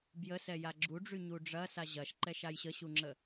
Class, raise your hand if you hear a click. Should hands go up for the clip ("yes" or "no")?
yes